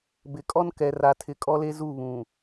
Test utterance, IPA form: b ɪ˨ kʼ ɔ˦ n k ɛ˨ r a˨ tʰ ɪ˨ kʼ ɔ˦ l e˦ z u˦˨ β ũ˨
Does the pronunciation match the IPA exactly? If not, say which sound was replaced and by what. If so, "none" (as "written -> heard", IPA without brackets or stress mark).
none